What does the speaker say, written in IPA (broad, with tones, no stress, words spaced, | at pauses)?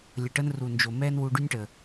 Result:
lʲə˨ʈə˦n ru˨nd͡ʒo˨ mɛː˦nwu˧ɖy˦nʲʈə˨